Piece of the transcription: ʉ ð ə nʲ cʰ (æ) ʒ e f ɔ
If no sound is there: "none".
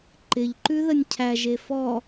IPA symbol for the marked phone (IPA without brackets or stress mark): æ